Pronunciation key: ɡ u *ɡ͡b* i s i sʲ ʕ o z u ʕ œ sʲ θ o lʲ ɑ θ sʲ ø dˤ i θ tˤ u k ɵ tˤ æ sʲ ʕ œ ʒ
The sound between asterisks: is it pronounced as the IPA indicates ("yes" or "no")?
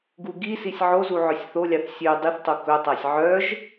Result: no